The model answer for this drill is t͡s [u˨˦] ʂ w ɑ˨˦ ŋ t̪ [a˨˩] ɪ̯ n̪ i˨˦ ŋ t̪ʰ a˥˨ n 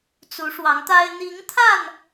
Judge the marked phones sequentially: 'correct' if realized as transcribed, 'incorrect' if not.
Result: correct, incorrect

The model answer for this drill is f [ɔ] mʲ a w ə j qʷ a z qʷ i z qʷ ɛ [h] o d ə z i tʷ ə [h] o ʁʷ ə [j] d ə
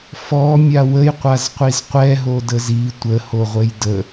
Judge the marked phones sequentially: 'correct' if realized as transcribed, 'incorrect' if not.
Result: correct, incorrect, correct, correct

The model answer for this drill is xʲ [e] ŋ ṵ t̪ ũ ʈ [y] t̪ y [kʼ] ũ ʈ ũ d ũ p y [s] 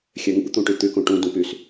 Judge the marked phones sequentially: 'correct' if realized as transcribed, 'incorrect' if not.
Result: incorrect, correct, incorrect, correct

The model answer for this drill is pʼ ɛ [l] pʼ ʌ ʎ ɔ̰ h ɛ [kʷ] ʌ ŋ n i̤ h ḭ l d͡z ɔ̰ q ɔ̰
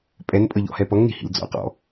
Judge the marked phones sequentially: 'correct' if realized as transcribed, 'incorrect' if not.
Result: incorrect, incorrect

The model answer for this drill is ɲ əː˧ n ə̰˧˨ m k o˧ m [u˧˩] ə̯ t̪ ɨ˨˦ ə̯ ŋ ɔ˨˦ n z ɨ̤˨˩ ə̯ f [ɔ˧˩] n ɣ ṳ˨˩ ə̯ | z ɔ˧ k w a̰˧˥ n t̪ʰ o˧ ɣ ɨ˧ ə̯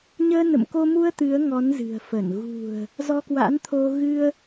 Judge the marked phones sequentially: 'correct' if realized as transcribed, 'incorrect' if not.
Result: incorrect, incorrect

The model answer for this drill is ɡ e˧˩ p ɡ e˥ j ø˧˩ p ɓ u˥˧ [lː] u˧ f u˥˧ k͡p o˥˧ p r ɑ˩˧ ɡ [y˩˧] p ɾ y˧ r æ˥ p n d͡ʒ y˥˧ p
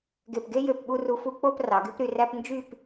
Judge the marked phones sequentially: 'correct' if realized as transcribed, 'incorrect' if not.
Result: incorrect, incorrect

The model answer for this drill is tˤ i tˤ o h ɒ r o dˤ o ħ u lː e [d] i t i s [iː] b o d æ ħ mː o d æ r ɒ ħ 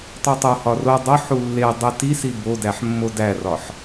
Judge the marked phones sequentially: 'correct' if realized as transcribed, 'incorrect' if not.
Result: incorrect, incorrect

